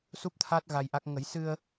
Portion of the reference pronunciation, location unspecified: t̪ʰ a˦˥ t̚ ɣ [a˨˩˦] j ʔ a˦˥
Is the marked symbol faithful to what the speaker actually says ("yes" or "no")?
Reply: no